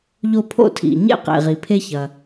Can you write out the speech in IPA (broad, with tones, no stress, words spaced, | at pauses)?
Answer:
ʎo˥pʰo̰˥tʰḭ˩ ɲḛ˥qḛ˩ ʁi˩pʰe˥ çɐ˩